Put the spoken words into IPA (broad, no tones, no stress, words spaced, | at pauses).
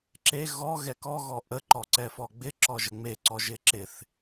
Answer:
ǁe ɣɔ ɣɛkɔ ɣɔʔə ǃɔǀɛfɔɡ͡bɪ ǁɔʒəŋ͡me ǀɔʒɪǁɪθ